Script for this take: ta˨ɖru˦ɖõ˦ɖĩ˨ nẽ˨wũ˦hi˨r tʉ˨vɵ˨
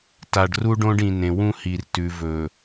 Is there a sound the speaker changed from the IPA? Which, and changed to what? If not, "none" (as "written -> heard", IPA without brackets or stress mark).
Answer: none